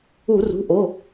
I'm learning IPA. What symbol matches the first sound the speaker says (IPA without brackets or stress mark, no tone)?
u